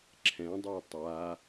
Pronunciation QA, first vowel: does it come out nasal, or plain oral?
nasal